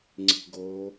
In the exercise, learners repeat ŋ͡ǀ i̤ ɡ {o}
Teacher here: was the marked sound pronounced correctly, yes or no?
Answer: yes